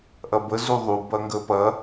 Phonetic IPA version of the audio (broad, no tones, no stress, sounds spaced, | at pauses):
ʔ ɐ b ə z u ðˤ u b ɐ ŋ ɡ ə p ɐ